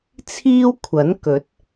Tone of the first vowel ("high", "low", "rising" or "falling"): high